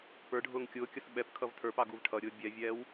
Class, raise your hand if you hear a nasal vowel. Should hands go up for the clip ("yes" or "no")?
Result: no